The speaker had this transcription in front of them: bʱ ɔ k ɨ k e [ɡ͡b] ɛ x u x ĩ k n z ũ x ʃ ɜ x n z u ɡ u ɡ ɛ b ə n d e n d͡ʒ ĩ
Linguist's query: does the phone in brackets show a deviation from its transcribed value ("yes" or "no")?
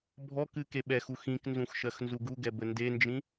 yes